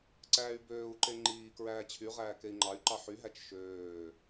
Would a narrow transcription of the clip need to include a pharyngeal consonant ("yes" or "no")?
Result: yes